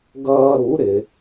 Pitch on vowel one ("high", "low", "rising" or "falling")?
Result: high